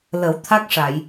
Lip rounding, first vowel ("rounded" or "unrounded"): unrounded